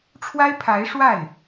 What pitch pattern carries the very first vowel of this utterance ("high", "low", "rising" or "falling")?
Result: high